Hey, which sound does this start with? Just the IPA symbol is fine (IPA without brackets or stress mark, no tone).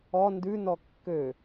ɔ